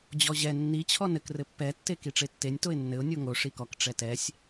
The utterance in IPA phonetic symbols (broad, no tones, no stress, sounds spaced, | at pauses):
d͡ʑ ɔ ʑ ɛ nː i t͡ɕʰ ɔ n ɘ k r ɘ pː ɛ tː e k i ʈ͡ʂ e tː e nʲ t o ɪ̯ nː ɘ ʊ̯ nʲ o ŋ o ʂ i k ɔ k ʈ͡ʂ ɛ t ɛ sʲ